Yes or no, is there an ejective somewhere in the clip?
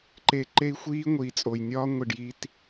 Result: yes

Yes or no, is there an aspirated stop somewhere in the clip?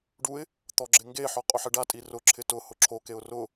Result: yes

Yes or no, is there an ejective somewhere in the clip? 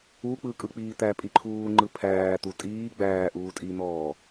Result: yes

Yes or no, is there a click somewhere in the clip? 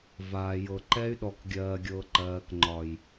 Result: yes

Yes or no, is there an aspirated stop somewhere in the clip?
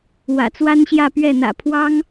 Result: yes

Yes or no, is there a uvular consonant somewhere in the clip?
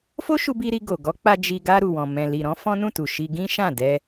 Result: no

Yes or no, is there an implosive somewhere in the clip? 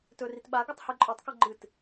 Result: yes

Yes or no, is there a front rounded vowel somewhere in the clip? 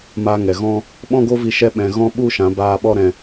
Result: no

